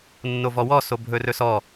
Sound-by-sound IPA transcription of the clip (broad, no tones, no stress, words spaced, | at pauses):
nːovɔwɔ sobʱɵrɵsɔ